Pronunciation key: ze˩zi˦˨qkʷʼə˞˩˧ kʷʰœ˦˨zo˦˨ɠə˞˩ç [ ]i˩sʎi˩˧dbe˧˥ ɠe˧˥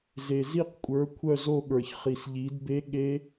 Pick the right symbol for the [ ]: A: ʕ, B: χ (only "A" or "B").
B